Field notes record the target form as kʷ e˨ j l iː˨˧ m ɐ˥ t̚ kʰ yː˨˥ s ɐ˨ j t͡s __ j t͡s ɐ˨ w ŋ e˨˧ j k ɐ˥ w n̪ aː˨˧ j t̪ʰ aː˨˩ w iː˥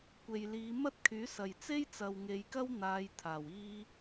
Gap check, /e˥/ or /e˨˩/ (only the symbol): e˥